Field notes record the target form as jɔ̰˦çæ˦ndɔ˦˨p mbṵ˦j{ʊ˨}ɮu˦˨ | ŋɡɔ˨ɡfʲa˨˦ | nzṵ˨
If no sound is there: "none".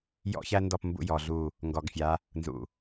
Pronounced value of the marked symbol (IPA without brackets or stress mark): ɔ˨